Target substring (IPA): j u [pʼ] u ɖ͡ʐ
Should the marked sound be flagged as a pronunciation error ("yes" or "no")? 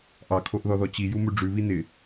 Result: yes